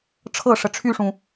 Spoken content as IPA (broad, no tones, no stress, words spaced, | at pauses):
ʈ͡ʂʰɤʂə ʈ͡ʂʰyʂũ